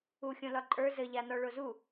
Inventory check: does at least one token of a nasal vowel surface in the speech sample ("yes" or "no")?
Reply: yes